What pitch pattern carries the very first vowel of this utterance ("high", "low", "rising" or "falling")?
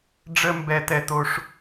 high